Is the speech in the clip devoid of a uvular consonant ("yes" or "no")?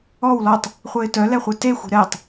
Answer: no